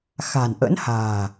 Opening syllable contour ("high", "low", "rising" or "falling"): low